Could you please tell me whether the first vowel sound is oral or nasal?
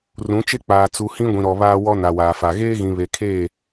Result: nasal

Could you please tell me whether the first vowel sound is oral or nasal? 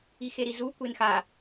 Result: oral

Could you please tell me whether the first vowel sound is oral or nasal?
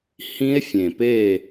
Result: nasal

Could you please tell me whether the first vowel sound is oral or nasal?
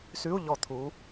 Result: oral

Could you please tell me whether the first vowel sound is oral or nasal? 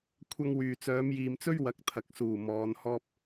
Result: oral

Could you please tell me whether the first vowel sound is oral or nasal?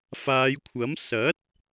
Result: oral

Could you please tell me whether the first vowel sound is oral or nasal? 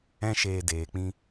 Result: nasal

